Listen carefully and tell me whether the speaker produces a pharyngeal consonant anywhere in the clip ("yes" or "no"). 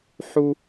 yes